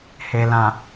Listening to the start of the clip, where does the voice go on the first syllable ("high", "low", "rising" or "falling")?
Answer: low